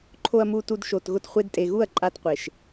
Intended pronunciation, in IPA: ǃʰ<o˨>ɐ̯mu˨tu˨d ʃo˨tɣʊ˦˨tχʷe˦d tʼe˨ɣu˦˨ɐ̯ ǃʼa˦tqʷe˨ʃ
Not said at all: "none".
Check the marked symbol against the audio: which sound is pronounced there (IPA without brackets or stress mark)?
o˨